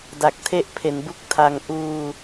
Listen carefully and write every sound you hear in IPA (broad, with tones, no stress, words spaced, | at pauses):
da˨˩k̚tʰe˦˥ʔpʰe˩˦nbu˦˥k̚ tʰa˧ŋ ʔuː˧